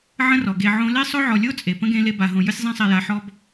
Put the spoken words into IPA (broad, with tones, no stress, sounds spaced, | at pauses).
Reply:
ʕ ə̃˦ r ɔ˩ ɡ e˨ ʕ õ˦ l e˥ sˤ ɵ˥ ʕ ɔ˨ lʲ o˥ t͡sʼ e˩ p ə̃˥ ɡ ẽ˦ l e˦ b a˨ ɦ õ˨ j ɵ˦ sʲ zˤ ẽ˦ sˤ ɛ˨ j a˨ ħ ɔ˦ b